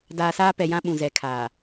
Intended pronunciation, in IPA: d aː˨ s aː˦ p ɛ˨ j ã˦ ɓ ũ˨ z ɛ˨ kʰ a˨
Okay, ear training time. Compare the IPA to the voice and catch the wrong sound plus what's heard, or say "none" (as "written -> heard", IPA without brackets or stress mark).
a˨ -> aː˨